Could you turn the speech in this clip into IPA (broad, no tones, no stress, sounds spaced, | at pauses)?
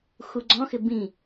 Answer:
x u ɡ͡ǀ ɔ̃ x ɪ b ĩ